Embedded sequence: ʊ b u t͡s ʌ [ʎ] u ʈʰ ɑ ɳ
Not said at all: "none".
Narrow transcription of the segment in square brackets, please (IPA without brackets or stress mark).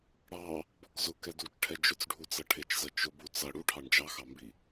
ɽ